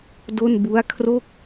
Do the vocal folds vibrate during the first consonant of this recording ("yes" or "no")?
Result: yes